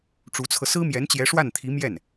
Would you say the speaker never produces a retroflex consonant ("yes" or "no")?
no